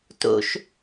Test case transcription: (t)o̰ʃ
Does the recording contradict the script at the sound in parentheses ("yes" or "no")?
no